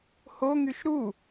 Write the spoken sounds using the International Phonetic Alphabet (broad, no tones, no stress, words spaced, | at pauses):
hoŋyʃ ɾu